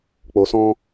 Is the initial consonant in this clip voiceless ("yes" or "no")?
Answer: yes